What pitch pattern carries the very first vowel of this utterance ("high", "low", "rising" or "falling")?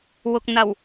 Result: low